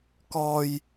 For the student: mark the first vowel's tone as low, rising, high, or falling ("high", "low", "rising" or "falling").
low